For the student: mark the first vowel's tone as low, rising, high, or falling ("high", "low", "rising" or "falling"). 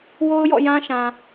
high